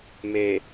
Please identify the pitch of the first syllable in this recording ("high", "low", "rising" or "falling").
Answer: low